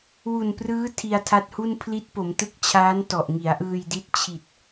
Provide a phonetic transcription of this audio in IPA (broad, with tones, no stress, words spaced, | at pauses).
wu˨˩nprɯː˦˥ tʰi˧a̯tʰa˦˥t̚hu˥˩n pʰli˦˥t̚po˩˦mtɯ˦˥k̚t͡ɕʰaː˦˥n tɔ˨˩ʔŋi˩˦a̯ʔɯː˧jdi˦˥t̚ t͡ɕʰi˨˩t̚